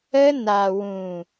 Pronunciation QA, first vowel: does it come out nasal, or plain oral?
oral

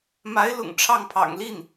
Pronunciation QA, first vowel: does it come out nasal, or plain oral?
oral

